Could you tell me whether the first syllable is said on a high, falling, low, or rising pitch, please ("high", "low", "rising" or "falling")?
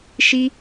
high